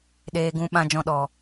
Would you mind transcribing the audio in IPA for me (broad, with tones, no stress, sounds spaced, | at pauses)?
ɗ eː˧ ɡ ũ˧ ɓ ã˧ d͡ʒ ɔ̃˧ ɗ ɔ˨